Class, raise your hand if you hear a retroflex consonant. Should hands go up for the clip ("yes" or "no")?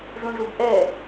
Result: yes